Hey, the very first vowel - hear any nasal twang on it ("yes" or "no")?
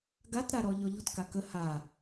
no